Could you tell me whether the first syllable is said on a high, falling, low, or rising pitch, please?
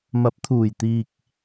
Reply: rising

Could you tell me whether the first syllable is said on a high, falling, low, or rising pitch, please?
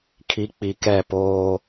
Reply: rising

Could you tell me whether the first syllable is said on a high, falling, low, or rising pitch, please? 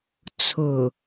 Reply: low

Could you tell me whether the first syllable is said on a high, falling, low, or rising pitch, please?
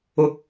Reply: low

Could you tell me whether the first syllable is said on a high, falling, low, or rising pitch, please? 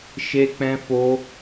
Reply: high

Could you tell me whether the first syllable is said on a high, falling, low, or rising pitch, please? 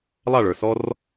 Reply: falling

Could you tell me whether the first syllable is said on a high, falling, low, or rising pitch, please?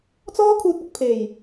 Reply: high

